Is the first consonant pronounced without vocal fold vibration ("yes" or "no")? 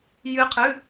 no